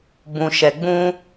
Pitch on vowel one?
low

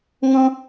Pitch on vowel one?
high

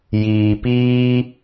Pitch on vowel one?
low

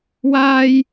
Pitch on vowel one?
high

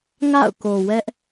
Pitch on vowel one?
falling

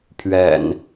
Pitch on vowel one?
low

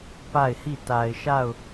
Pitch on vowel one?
falling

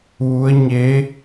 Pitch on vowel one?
rising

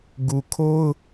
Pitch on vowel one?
low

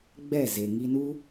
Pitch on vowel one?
falling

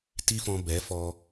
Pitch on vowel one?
high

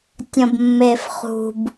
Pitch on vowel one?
low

